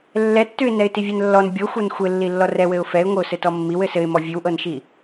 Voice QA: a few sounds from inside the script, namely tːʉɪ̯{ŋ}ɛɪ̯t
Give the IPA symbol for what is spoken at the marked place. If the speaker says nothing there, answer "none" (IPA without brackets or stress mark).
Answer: n